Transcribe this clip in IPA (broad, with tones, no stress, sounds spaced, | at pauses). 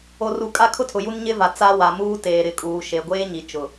o˨ r u˨ kʼ a˦ kʰ ʊ˦ tʰ ʊ˨ j u˦ n ɲ ɪ˦ v a˨ t͡s a˦ w a˨ m uː˦ t eː˨ ɾ ɪ˨ kʼ uː˨ ʃ e˨ ɡʷ eː˦ ɲ i˨ t͡ʃ ʊ˨